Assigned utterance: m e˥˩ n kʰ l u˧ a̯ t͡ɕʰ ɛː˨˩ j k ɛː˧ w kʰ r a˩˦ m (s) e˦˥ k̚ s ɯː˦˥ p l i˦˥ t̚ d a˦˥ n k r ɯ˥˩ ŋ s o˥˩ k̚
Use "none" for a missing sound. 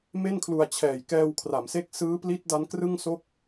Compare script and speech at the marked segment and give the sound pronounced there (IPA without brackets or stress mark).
s